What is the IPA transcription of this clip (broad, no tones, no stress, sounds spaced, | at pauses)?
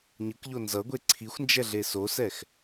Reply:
ɲ ɯ k ʎ o n z ʌ ɡʷ e ǀʰ i xʷ n d͡ʒ ɛ ɮ e s o s ɛ x